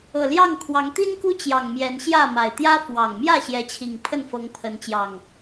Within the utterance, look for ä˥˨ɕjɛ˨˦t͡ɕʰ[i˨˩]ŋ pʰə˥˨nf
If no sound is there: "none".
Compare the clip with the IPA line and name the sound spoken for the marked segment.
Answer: i˨˩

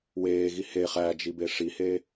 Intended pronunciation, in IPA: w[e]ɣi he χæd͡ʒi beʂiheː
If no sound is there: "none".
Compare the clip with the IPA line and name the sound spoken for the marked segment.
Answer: eː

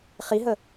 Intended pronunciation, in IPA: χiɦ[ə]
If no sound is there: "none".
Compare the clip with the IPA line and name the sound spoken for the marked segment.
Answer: ə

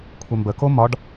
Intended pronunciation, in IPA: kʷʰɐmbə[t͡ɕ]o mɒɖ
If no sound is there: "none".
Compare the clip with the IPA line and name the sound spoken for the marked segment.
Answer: k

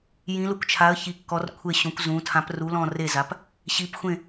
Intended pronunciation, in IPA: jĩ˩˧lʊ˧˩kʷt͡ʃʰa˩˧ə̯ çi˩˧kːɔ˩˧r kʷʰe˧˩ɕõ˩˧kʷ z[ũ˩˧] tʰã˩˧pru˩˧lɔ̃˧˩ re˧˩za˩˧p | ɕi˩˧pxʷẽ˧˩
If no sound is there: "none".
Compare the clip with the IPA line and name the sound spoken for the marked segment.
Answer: ũ˩˧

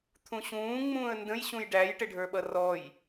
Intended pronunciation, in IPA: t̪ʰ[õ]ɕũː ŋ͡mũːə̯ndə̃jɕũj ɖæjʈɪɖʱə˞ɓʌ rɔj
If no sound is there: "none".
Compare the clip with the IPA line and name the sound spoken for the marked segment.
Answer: ũ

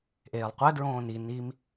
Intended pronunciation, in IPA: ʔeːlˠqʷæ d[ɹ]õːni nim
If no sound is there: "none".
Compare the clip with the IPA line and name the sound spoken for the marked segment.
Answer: ɹ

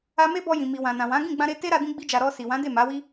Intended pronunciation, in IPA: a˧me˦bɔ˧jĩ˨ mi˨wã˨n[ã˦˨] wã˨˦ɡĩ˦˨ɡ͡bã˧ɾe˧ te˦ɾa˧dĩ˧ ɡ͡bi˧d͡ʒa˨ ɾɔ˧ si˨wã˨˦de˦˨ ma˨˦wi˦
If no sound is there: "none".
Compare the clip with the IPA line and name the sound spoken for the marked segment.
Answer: ã˨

